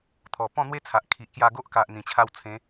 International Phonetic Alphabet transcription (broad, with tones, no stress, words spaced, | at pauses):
t̪ʰɔ˨˩pɔ̃˥˧n̪we˦t͡sʰa˨ʔ kʰi˨ʔkja˧ɡo˦ʔka˨ʔ n̪ĩ˨˩t͡ɕʰa˧w t͡sʰẽ˨˦